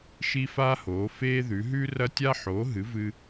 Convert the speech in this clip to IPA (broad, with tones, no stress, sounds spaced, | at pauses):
ʃ i˥ f a˥ h oː˨˥ f eː˥ ð ʉ˨˥ ɦ ʉː˥ r ɐ˥ tʲ a˥ ħ oː˨˥ ɦ ɨ˨˥ v ɨ˥